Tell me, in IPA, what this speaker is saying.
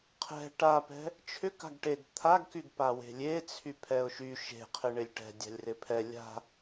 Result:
qʰ ɛ̤ ʈ a p ɛ̤ | t͡ʃʰ ʏ k a̤ ɡ ʈ e ɡ t̪ʰ a ɡ k y ɡ p a w e̤ lʲ e t͡sʰ y pʰ ɛ ʊ̯ ʃ y ʃ e̤ qʰ ɪ ɳ ɪ lʲ ʈ ɛ̤ dʲ a̤ lʲ r ɪ pʰ ɛ lʲ a̤

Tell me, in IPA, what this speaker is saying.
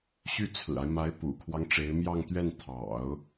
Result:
ɕ y˥˩ t͡sʰ ɹ̩˨˩ a˦ ɪ̯ m a˧˥ ɪ̯ p ṵ˨˩ kʰ w ɑ˦ ŋ ʈ͡ʂ e˧˥ ɪ̯ m j ɑ˥˧ ŋ t̪ ɥ ɛ˥˩ n t̪ʰ ɑ̰˨˩˦ ʊ̯

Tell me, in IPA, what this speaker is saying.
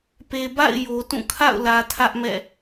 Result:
p e˨ b a̰˦˨ ɪ̯ j o˨ t ũ˦˨ kʰ a̰˦˨ ʊ̯ l ä˨ tʰ ä˦ ʔ m ɛ̰˦˨

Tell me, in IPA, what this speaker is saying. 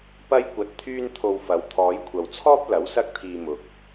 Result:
p ɐ˥ j kʷ ɐ˧ t̚ t̪ʰ yː˥ n t̪ʰ o˧ w f ɐ˨˧ w t̪ʰ ɔː˨˧ j kʷʰ ɐ˨ w t͡sʰ ɔː˥ p̚ l ɐ˨˥ w s ɐ˥ k̚ t̪ʰ iː˧ m ʊ˨ k̚

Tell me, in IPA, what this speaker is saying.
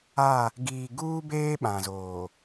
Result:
a˦˨ | ɡ iː˨ ɡ uː˦ b eː˦ ɓ ã˨ z oː˨

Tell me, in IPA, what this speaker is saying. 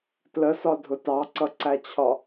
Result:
t l ə s ɒ dʱ ʊ t ɑ ǀ ʌ ǀ æ t͡ɕʰ ɒ

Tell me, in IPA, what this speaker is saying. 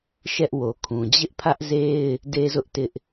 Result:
ʃ ɛ˦ ʔ w o˨ kʰ ũ˨ d͡ʑ ɪ˦ ʔ pʰ ä˦ ʔ z e˦ ɪ̯ | d e˦ z ʊ˦ ʔ t ɪ˦ ʔ

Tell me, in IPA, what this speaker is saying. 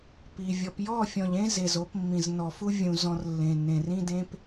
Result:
p i˨ vʲ ɔ˨ p j ɔ˦˨ fʲ ɔ̃˨ ʎ ẽ˦ z e˨ z o˨˦ p mː ĩ˨ z n ɔ˨ f u˦ vʲ ũ˦ z ɔ̃˦ r lː ẽ˨ nː ẽ˨ r ĩ˦ d ẽ˦ p

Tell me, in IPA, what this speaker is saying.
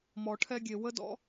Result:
m ɔ˨ ʈʰ ɛ˧ ɡʲ e˨ w ə˦ d ɔ̰˦

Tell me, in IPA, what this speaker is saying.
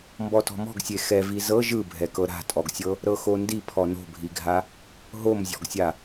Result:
m b ɔ t ɔ̤ m ɔ̤ ɡ sʲ e x ɛ v i z ɤ ʒ ɯ bʱ ɛ k ɤ ɾ a̤ tʼ ɔ ɡ sʲ ɤ | ɾ ɤ x o n d i pʰ ɔ n o̤ bʱ i ɡʱ a | ɦ o m zʲ ɔ̤ ɡ sʲ a

